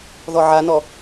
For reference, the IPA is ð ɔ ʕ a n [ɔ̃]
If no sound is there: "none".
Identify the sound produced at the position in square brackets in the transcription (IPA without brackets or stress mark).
ɔ